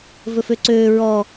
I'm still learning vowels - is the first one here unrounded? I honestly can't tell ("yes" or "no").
no